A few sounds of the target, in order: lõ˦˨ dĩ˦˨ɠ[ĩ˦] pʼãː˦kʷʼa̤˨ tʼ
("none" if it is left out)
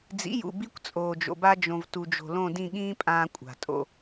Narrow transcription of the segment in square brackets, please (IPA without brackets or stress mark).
ĩː˦